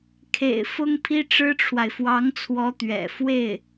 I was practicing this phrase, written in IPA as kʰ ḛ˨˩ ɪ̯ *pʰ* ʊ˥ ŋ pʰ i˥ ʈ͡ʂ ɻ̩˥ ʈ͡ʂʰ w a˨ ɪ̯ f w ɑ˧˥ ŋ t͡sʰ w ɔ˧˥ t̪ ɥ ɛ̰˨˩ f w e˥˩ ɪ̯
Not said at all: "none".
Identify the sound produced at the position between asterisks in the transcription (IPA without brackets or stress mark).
f